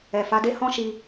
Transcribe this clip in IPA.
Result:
ɛ˨fa˨˦de˦ hɔ̃˦ʃi˧

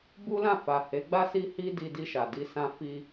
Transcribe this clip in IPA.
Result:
bu˦lã˦˨fa˨ he˨˦ɡ͡ba˦ si˦hi˦ di˧di˧ʃa˨di˧ sã˧fi˧

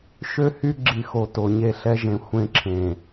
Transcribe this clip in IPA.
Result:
ʃø˦hy˦ɡ͡ǁi˨xo˨ to˨ɲe˦˨ɬɛ˦ʒẽ˨ xʷẽ˦ǁʰẽ˨

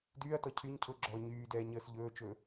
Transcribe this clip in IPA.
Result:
dyːɐ̯tɔ cʰyɲ cʰʊɡ͡ǁɔː ɲyːdɛːɲəːs ʎɵːt͡ʃɵː

